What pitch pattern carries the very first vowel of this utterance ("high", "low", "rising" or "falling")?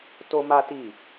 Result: high